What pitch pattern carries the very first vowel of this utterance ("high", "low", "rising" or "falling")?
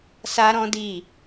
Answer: high